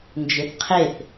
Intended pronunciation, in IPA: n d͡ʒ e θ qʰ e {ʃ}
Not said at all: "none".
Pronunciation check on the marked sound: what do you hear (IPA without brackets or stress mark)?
θ